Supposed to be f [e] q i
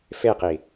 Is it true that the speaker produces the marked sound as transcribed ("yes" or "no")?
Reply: yes